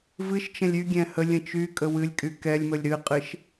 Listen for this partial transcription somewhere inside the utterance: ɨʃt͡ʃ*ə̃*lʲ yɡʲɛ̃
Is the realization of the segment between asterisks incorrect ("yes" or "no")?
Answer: no